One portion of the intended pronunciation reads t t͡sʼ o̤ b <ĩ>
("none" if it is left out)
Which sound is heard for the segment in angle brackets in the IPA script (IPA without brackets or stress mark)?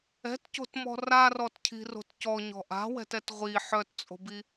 i